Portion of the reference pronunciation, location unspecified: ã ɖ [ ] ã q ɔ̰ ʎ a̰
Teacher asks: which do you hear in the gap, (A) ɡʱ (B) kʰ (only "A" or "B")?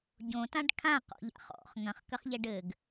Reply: B